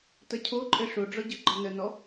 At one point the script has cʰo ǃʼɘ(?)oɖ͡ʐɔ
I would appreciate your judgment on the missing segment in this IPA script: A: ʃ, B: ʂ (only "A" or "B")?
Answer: B